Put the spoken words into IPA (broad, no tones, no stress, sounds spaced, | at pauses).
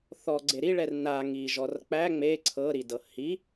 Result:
θ ɔ ɡ͡ǀ e ɾ i ɭ ɛ r n a ŋ i ʒ ɔ r k͡p æ ŋ͡m e ǀʰ ɤ ɾ i d ɤ h i